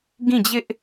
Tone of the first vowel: falling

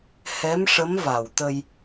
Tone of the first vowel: rising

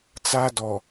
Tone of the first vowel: high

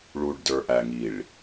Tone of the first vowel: low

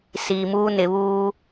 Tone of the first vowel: low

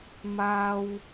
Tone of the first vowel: high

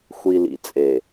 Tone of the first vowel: low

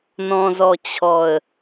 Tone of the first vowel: low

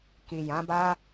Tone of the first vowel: low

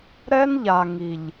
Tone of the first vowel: high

